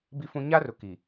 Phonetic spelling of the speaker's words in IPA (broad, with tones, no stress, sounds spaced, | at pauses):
b i˦ f ũ˦ ɲ a˦ r ʊ˨ k i˨